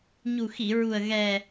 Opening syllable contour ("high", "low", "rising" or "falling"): low